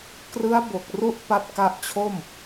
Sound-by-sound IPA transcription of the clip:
krɯ˦˥a̯bo˨˩k̚ru˦˥ʔ pa˦˥t̚ka˦˥ʔt͡ɕʰo˥˩m

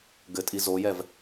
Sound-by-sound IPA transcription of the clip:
ɡɘtʼi zojɛv

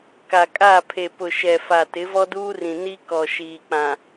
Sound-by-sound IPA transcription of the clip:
ka˨kʼa˦˨ pʰe˨pʊ˨ ʃɛ˨fa˨ tɪ˨˦vɔ˦duː˦rĩ˨ ni˦ kɔ˨ʃiː˨k͡pã˨

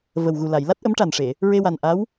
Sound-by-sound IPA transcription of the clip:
və˨˩wɣu˨˩la˨˩˨j la˦˥t̚ʔə˧˥mʈa˨˩nʂe˨˩˨ | ɹe˧wa˨˩nʔa˧˥w

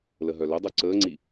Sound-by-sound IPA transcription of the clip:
ləɦœlɵdˤœ ǀəːŋ͡ǀi

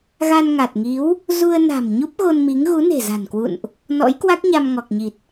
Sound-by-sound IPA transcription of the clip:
ɣa˧nŋa˨˩t̚ŋi˨˦w | zu˧ə̯ na̤˨˩m ɲu˦˥p̚ɣo˧nmi˨˦ŋ ɣu˨˦ne̤˨˩za̤˨˩nkwṵ˧˨nʔ | nɔ̰˧˥jkwa˦˥k̚ɲa˧m ŋɔ˨˩k̚ɲi˨˩t̚

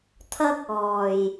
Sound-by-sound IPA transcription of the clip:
t̪ʰɐ˥k̚ɔː˨˩j

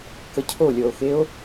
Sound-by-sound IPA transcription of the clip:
kəcʰolʲɔo̯xeo̯

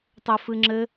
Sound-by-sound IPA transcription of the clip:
tˤɵfɨŋ͡ǁɘ

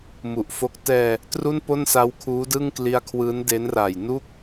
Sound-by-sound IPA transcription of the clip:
mu˨˩ʔfo˦˥k̚ tɛː˧ | tru˥˩npo˥˩nsa˦˥wkʰuː˦˥ dɯ˥˩ŋkli˦˥a̯kʰwɯː˦˥nde˦˥n raː˨˩jnu˥˩k̚

